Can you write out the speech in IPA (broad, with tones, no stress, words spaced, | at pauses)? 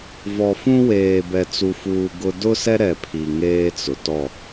vɔ˨fũ˦weː˨ bɛ˨t͡su˨fuː˨ ɡʊ˦ dʊ˦sɛ˦ ɾɛ˨pʰi˨ ŋeː˦t͡sʊ˨ tɔ˦˨